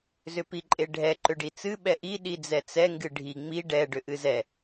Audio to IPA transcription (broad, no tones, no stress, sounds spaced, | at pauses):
z ʏ p i ǃʼ e ɖʱ ɛ ǃ ʏ ɖ i t͡s ɨ ɓ ɛ ʔ i ɗ i d͡z ɛ t͡s ɛ ŋ ɡ ɨ ɖʱ i ŋ͡m i ɖ ɛ ɖ ʏ ʔ ɨ z ɛ